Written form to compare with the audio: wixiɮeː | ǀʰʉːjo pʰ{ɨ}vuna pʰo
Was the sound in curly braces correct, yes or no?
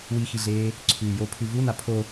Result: no